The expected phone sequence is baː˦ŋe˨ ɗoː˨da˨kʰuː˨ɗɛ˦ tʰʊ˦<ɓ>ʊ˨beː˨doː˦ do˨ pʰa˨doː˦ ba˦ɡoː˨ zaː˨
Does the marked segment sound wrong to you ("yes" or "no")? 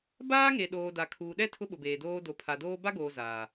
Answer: no